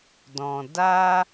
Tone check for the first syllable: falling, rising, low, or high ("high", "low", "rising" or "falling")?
low